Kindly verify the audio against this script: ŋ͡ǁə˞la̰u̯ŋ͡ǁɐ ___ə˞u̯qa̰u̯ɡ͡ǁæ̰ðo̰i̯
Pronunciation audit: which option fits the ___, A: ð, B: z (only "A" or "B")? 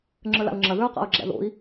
A